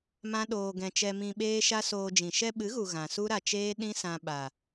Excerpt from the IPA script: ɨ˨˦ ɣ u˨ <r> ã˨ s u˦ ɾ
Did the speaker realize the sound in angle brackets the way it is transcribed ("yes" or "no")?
no